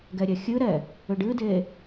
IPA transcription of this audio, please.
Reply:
ɡ ɛ ɾʲ ɛ xʲ ɨ ɾ ɛ | ʏ ɖ ɨ d e

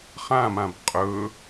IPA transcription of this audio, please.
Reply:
χ ã m ã b qʼ ɵ

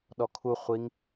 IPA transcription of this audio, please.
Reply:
ɗ ɔ kʰ u χʷ i ŋ

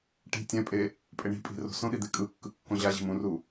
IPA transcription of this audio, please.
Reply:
ʈ i̤ tʲ ɛ̃ pʼ e | pʼ e ɳ i̤ pʼ i̤ r o̤ s õ ɗ i d̪ e kʼ ɯ kː ɯ kː õ ʑ a ʑ i̤ m ũ r u

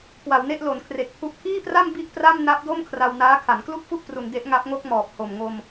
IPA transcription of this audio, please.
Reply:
k w a˩˦ w n e˥˩ ʔ l o˩˦ n kʰ r e˨˩ k̚ pʰ u˦˥ ʔ kʰ iː˥˩ p r a˥˩ m b i˥˩ ʔ p r a˥˩ m n a˦˥ p̚ d o˥˩ m kʰ r a˧ w n aː˦˥ kʰ a˩˦ n k l u˥˩ k̚ f u˥˩ ʔ p r u˧ n d e˦˥ ʔ ŋ a˦˥ p̚ ŋ o˥˩ k̚ m ɔː˨˩ p̚ h o˨˩ m ŋ o˧ m

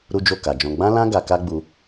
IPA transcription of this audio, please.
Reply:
ɾ u˦ d͡ʒ o˦˨ k a˨ d͡ʒ ɔ̃˧ ɡ͡b ã˦ l ã˦ ɡ a˧ k a˦ ɡ͡b u˧

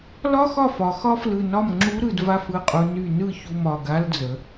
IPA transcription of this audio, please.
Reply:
l ɒ˥ x ɒ˥˩ f ɒ˩˧ x ɒ˥ f l ɯ˧˩ n ɒ˥˩ m ŋ͡ǁ u˧˥ ɾ ɯ˧˩ d v a˥˩ f ɯ˧˩ qʼ u˩˧ n y˧˩ n ɯ˥˩ ç u˧˩ m ɒ˧˩ ɡ a˧˥ l d͡z ə˩˧

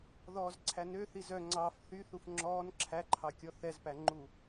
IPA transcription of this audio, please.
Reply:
ð ɔː z ǀʰ æ n ø θ i z œ ŋ͡ǀ ɑ f θ y θ u f ŋ͡ǁ ɔː n ǁʰ æ ǃʰ ɑ kʲ ɔ θ ɛ z p æ ŋ͡ǃ u

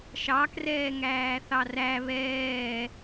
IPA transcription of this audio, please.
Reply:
ʃ ɑ k r ɛː ŋ æː θ ɑ r æ β ɛː

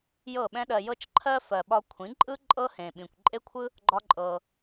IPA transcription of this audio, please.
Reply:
j ɤ˦˨ ɓ ɛ̃˦ ɗ ɜ˧ j ɤ˧ t͡ʃ ǃʰ ɜ˧ f ɜ˨ ɓ ɒ˧ kʷʰ ĩ˨˦ ǃʼ ɯ˦ ǃʼ ɤ˦ h ẽ˨ ɓ ĩ˨ kʷ ǃʼ e˦ kʷʰ ɯ˦ | ɡ͡ǃ ɒ˦ ǃʼ ɤ˧

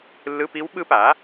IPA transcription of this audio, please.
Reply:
lː ɯ˧˥˧ p i˦˥ w ɓ ɯ˦˥ p a˩˥

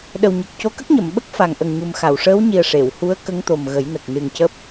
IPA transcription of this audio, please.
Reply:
ɗ ə˨˩ w ɲ ə˨˩ k̚ c o˧˥ k ə˦˥ k̚ ɲ ə˨˩˨ m ɓ ə˦˥ k̚ f a˨˩ ŋ ʔ ə˨˩ ŋ ɲ u˨˩ m x a˨˩˨ w ʂ əː˧˥ w ɲ i˨˩ ə̯ ʂ e˨˩˨ w h u˧˥ ə̯ k ə˧˥ ŋ t̪ o˨˩ m ɣ ə˨˩˦ j n ə˨˩ k̚ n ɨ˨˩ ŋ c əː˦˥ p̚

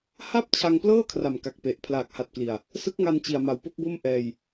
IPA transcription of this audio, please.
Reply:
h a˥˩ p̚ t͡ɕʰ a˧ ŋ p l ɤː˥˩ kʰ r a˨˩ m k a˨˩ k̚ p e˨˩ ʔ pʰ l aː˨˩ k̚ h a˨˩ t̚ k l i˨˩ a̯ | s ɯ˦˥ k̚ ŋ a˧ n t͡ɕ i˨˩ a̯ m a˨˩ w p o˥˩ k̚ b o˥˩ m ʔ ɛː˧ j

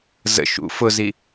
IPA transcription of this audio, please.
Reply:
z ə̰ ʃ ṵ f ʊ z i

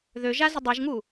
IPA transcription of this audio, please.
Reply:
ð ø ʒ a z ə dˤ ɛ ʒ ŋ u

